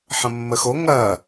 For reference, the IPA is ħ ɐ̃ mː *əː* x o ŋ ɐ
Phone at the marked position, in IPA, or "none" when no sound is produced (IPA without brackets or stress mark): ə